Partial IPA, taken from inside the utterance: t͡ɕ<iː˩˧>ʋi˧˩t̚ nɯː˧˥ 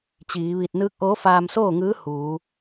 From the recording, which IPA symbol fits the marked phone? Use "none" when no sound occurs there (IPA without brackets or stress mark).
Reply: iː˩˧